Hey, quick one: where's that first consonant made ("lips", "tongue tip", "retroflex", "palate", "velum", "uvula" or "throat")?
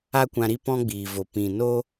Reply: velum